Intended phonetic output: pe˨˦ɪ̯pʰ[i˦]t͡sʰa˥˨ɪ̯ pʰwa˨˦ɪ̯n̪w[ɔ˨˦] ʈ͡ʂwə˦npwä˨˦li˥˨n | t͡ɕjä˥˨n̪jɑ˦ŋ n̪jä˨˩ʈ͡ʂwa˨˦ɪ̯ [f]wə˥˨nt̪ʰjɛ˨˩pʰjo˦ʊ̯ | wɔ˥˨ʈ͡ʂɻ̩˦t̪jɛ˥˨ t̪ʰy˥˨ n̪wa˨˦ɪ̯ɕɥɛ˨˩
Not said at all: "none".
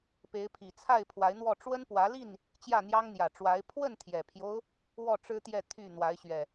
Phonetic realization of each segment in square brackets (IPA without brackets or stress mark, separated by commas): i˨˩, ɔ˥˨, pʰ